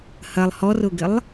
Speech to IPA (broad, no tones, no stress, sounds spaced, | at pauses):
h ɐ lˠ h ɔ r ʊ ɡ ɪ lˠ